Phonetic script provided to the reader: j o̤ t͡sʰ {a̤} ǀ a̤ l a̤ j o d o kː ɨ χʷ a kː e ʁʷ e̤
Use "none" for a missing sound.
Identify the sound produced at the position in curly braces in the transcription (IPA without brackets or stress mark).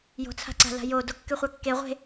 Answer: a̤